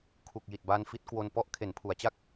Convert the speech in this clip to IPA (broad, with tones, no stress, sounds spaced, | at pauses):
kʰ u˨˩ k̚ j i˨˩ t̚ b a˧ n f i˦˥ t̚ k w o˧ n p ɔ˥˩ ʔ kʰ e˩˦ n pʰ u˩˦ a̯ t͡ɕ a˥˩ k̚